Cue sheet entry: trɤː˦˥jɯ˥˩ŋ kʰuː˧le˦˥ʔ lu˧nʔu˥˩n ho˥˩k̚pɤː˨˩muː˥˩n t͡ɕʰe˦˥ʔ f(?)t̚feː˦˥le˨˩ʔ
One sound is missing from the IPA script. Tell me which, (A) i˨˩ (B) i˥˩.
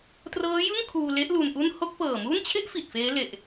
A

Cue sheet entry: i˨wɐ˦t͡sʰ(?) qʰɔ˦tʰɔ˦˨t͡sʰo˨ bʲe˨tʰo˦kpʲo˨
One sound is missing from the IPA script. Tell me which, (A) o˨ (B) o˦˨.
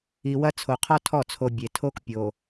A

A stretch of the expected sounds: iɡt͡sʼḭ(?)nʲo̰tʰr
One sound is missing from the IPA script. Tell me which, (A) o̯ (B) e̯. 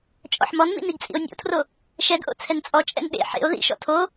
A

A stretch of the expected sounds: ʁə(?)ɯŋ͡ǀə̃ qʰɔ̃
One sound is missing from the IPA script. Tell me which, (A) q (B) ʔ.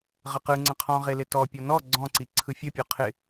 A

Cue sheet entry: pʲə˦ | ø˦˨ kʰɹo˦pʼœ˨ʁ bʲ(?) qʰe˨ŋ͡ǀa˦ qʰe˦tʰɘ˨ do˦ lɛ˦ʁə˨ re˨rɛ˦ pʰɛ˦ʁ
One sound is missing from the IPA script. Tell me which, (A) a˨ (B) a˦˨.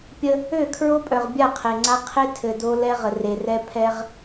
B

